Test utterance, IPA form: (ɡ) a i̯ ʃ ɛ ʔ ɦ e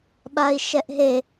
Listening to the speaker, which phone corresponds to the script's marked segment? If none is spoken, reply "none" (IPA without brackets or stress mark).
ɓ